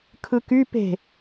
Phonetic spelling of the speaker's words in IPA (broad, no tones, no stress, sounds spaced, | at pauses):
kʰ ɯ k y p e̤